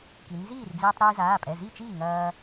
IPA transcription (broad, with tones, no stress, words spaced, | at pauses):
ki˩˧nziː˥˩rd͡ziː˧tˤ ɾiː˧zaː˩˧˩pʼɛ˩˧˩ zi˥˩t͡ʃiː˥˩ ŋɐː˧